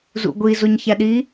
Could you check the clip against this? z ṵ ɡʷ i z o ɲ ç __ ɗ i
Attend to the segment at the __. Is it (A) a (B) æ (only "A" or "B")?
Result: B